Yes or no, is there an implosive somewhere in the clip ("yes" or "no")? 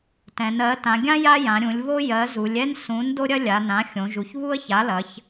no